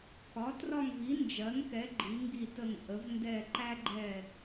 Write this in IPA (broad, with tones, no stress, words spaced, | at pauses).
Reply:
kɒ˩˥trɒ˦˨ŋvi˩˥ nd͡ʒɜ˩˥ŋkɛ˩˥ ɡ͡ǃi˩˥ŋɡi˦˨tə˦˨ŋ ʔə˩˥v ndɛ˦˨ ǃæ˦ɡ͡ǃɛ˦˨